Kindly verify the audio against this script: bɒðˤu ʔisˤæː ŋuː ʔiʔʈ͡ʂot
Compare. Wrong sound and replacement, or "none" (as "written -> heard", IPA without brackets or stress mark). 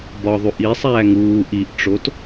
none